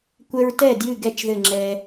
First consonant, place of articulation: velar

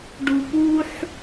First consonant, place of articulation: retroflex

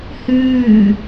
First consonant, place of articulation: glottal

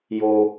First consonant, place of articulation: palatal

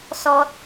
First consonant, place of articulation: alveolar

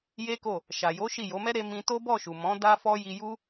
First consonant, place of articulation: palatal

